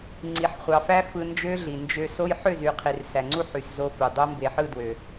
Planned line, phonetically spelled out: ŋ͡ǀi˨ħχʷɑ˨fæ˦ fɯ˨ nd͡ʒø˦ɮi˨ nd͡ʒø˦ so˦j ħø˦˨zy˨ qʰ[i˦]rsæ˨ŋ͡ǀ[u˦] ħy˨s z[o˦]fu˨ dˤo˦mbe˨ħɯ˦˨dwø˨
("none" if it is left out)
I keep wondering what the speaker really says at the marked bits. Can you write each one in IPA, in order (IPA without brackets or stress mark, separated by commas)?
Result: i˨, u˦, o˦